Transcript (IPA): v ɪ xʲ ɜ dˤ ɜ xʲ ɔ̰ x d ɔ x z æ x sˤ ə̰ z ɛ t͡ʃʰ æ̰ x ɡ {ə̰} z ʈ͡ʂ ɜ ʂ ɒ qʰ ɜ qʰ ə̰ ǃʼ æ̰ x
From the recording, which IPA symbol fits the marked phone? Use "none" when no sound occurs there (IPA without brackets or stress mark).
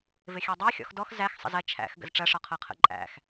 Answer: ə̰